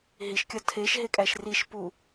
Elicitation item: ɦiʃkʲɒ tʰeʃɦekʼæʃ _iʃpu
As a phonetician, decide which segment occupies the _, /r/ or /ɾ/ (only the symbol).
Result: r